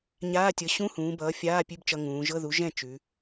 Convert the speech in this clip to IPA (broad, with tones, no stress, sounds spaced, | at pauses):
ɲ aː˧˥˧ tʲ ɤ˨˥ ɕ ũ˧˥˧ h ũː˩˧ b ʌː˨˥ fʲ aː˧˥˧ pʲ ʉ˧˥˧ b t͡ʃ ʌ˧ ŋ ũː˩˧ ʒ ɤ˧˥˧ ð u˨˥ ʒ ɛ̃˥˩ t͡ʃ ʉ˩˧